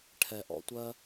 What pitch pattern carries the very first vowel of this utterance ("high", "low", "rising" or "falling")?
low